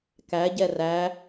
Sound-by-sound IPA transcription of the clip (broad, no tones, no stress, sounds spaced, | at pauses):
k æ ɟ ɛ r æ